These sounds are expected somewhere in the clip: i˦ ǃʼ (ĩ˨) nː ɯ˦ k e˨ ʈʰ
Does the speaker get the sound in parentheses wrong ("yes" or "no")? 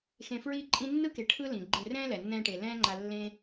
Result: yes